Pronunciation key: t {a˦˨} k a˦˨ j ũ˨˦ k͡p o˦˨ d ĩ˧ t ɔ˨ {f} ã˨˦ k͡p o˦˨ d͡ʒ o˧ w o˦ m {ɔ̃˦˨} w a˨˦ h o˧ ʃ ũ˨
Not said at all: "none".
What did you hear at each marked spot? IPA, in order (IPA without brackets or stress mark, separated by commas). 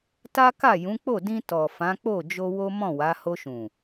a˦, f, ɔ̃˦˨